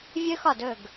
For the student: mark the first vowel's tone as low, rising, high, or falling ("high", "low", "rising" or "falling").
high